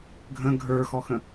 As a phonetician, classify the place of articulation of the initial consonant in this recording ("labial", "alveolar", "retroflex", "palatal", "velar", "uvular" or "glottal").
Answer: velar